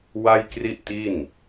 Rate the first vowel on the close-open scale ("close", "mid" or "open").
open